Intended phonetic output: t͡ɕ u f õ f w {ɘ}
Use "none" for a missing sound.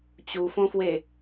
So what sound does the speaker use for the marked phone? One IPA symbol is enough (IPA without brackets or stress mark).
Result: e